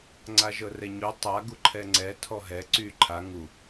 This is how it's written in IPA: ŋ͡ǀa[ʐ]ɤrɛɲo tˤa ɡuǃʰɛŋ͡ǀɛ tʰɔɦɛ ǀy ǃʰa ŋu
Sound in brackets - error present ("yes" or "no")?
yes